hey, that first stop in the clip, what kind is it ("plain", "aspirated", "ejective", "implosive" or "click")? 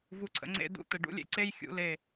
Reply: click